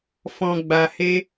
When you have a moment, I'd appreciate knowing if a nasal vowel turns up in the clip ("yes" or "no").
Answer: yes